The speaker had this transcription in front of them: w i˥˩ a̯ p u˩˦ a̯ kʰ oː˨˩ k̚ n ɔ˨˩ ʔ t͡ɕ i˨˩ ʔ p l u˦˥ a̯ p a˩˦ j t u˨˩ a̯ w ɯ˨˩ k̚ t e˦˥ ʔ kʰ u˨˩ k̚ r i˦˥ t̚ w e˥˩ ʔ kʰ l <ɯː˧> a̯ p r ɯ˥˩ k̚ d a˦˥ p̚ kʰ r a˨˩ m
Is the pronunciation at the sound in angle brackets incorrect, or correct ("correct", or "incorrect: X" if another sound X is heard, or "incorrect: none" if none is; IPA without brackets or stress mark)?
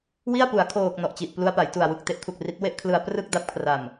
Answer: incorrect: ɯ˧